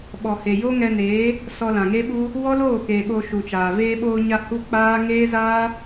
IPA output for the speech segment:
ɓɔ˨he˨ jo˦ŋɛ˧neː˨˦ | sɔ˧lã˨ŋe˦ɓu˦ | wɔ˦loː˦˨ke˨ ɓo˧ʃu˨t͡ʃaː˨ veː˧ɓoː˧ɲa˧ hu˦k͡paː˦ ŋeː˦zaː˦

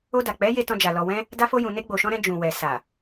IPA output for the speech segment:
o˧da˨ k͡pɛ˨˦ je˧ tɔ̃˧d͡ʒa˨ lɔ˨wɛ̃˧ | da˧fo˧jũ˨ ne˧ɡ͡bo˨ʃɔ̃˧ ɾɛ̃˧d͡ʒũ˨wɛ˨ sa˨

